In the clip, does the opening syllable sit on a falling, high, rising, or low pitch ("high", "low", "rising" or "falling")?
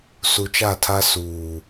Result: low